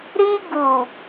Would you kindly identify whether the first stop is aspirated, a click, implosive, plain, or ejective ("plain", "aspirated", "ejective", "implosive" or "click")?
plain